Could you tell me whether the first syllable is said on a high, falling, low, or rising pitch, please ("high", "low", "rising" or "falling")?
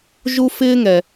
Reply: high